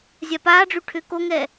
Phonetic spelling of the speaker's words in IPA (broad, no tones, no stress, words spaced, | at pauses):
zʲapaːɖ͡ʐy ʈʰʏ koŋɛ